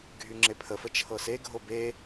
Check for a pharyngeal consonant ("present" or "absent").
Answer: absent